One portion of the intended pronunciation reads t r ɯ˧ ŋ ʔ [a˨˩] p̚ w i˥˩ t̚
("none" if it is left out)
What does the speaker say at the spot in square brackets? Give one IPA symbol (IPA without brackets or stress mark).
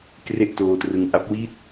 a˦˥